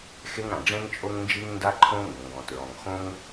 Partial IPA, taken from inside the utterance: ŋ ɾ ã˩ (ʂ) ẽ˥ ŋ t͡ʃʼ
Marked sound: incorrect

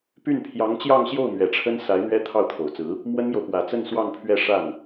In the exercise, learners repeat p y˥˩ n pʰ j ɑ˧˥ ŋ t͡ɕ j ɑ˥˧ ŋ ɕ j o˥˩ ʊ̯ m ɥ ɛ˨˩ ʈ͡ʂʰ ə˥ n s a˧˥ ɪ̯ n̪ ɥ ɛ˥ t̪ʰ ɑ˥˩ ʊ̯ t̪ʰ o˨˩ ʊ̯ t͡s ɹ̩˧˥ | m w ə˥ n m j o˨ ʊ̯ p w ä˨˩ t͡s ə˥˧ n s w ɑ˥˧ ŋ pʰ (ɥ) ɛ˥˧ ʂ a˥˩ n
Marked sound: correct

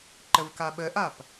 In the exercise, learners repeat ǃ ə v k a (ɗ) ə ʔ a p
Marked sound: incorrect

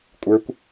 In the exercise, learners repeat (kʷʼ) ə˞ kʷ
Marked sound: correct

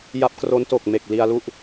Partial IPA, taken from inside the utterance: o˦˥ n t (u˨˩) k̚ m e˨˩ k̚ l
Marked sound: incorrect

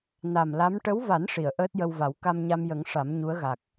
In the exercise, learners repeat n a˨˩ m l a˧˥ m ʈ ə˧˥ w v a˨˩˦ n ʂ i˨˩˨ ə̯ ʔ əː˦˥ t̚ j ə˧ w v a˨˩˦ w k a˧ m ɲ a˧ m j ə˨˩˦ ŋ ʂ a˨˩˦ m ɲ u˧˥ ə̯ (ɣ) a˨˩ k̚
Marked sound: correct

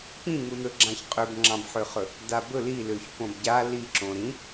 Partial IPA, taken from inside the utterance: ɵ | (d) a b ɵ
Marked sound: correct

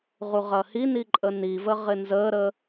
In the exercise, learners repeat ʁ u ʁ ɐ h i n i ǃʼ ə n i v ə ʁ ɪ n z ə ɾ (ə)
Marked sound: correct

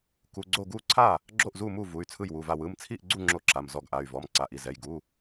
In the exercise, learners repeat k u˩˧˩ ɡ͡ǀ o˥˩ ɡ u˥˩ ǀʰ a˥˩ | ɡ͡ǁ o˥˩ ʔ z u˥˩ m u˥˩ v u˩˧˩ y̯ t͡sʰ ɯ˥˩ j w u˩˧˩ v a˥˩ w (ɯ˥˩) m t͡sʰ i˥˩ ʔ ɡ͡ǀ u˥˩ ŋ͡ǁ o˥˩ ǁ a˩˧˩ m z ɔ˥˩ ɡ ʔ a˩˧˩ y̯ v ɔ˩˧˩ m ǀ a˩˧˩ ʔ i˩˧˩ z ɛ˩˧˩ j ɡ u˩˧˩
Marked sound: incorrect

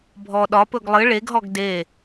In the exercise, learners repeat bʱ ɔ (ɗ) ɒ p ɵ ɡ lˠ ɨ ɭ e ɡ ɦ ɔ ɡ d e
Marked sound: correct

